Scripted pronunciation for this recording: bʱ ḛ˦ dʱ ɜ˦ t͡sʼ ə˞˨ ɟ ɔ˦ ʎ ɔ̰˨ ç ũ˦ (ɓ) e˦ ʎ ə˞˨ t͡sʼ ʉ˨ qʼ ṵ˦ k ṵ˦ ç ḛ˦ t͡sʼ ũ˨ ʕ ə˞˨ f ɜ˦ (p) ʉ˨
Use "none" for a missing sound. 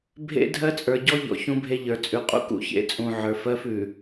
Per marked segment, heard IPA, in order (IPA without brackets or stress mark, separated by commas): bʱ, f